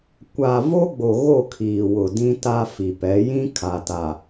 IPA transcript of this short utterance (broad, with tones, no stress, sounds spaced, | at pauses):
kʷ a˨ v o˦ ɡ͡b o˨ ɣ o˦˨ kʰ iː˨ w ʊ˨ d ĩ˦ t a˦ f i˨ p ɛ˨˦ j ĩ˦ kʰ a˨ t a˨